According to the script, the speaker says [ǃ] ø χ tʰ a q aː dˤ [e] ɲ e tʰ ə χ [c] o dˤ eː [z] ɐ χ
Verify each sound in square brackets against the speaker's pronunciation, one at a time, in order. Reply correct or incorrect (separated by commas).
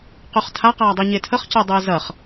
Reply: incorrect, incorrect, correct, correct